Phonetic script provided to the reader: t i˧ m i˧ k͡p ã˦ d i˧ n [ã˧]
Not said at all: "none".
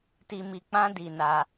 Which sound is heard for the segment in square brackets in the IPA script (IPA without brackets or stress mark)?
a˧